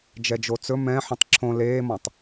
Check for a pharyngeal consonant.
present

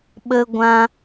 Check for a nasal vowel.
present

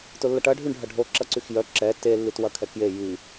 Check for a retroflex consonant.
present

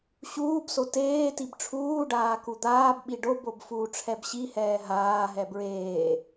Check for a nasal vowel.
absent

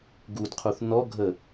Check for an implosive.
absent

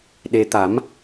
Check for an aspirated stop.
absent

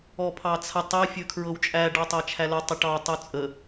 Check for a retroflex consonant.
present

